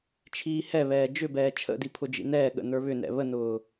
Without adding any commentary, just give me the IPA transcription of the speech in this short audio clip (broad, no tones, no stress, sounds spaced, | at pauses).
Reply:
t͡ʃʰ iː h ɛ β ɛː d͡ʒ ʏ b ɛː t͡ʃʰ ə̰ d i pʰ ʊ d͡ʒ ḭ n ɛː ɠ ə̰ n ə˞ β ʏ n ɛ̰ β ə n ʊː